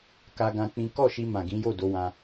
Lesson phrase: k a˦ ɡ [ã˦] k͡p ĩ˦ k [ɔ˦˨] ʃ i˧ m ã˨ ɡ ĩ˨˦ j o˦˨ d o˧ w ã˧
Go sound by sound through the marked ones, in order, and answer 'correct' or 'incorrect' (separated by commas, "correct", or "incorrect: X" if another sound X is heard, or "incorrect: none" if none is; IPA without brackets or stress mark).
correct, correct